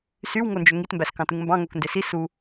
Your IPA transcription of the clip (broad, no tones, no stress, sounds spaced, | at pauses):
s y w ŋ o n d͡ʒ ø ŋ i t m b æ s k ɑ̃ t ɯ ŋ m b ɑ̃ ŋ o k n d e s i s u